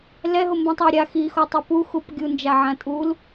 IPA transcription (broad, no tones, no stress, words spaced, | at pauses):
lɛɦombũtˤa ɾʲa xixotˤɘ puxup ɡʲund͡ʒaʕã tʼul